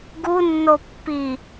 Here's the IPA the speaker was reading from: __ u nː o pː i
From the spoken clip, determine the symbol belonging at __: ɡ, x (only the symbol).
ɡ